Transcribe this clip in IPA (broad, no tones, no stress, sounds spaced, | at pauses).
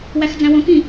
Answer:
w æ x d͡z æ̃ w õ k ĩ